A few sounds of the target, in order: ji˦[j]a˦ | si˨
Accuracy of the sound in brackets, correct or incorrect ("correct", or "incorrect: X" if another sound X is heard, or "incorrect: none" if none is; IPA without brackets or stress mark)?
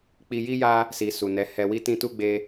correct